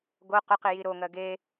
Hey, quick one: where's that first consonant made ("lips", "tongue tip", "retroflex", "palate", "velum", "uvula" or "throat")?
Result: velum